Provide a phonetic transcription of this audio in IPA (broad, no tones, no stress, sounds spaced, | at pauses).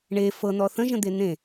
ɳ e f ɤ n̪ ɔ θ ə̃ ʒ ə̃ d̪ e n̪ ẽ